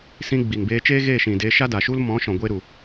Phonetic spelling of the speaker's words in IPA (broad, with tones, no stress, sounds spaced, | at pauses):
s ĩ˧ ɡ͡b i˨ ŋ b eː˧ t͡ʃ eː˦ ɣ e˦˨ ʃ ĩ˨ d e˧ ʃ a˦ d a˨ ʃ u˦ l m ɔ̃˨˦ ʃ ɔ̃˨ ɡʷ eː˦ ɾ u˨